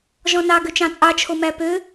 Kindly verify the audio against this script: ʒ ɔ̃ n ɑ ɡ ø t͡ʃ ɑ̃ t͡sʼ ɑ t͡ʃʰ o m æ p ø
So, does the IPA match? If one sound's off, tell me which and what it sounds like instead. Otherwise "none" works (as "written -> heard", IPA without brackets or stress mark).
none